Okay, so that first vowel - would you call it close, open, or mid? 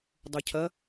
mid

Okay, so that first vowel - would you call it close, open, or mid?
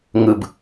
close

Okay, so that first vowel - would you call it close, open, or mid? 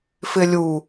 close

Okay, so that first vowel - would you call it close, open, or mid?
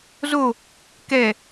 mid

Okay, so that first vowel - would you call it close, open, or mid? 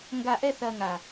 open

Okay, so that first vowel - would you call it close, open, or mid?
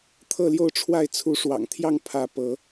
mid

